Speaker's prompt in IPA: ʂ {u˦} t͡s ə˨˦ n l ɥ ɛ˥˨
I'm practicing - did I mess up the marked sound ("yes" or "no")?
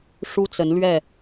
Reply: no